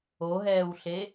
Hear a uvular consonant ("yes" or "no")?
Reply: no